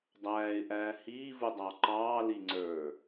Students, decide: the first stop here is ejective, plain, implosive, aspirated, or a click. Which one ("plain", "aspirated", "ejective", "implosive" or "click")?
plain